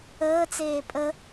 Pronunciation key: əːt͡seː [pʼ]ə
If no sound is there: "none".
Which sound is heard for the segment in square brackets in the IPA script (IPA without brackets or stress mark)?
pʼ